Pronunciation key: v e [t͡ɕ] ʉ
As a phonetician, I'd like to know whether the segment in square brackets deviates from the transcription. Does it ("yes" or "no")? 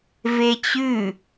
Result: no